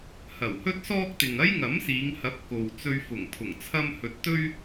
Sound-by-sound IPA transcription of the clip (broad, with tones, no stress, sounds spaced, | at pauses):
h ɐ˨˩ w h ɵ˥ t̚ s ɔː˥ k̚ t̪ ɪ˨ ŋ ɐ˥ j ŋ ɐ˨˥ m s iː˨˧ ŋ h ɐ˨˥ p̚ k o˨ w t͡s ɵ˧ ɥ f ʊ˨˩ ŋ pʰ ʊ˨˩ ŋ t͡sʰ ɐ˧ m h ɵ˨˥ t̚ t̪ ɵ˥ ɥ